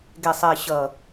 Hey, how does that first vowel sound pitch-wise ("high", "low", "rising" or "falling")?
low